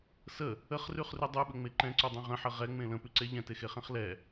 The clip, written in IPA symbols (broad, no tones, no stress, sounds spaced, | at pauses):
s ə | ə χ r ʉ χ r ʉ dˤ ʉ ɓ ə ŋ͡m e ǃ ɛ̃ ǀ ʉ dˤ ẽ ʁ ə̃ ħ ə ʁ ɛ ŋ͡m ẽ l ə̃ p ʉ ǀ e ʎ ɛ̃ t e x e χ ɛ̃ χ l ɛ